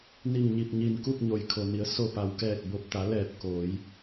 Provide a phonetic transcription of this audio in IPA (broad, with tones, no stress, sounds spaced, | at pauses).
n i˧˩ ŋ ɲ i˧˩ p̚ ɲ i˧˩ n k u˥˨ p̚ ɲ o˩ j kʰ o˩ n i˩˧ ə̯ s o˧˩ p a˩ w k ɛː˧˩ k̚ b o˧˩ p̚ t̪ a˩˧ l ɛː˧˩ p̚ k oː˩˧ j